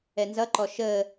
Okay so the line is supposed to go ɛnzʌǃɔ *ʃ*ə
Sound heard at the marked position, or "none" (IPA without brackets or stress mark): ʃ